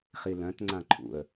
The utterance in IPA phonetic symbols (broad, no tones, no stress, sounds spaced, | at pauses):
χ i l œ̃ t ŋ͡ǀ ã ǃʰ ṵ ə̯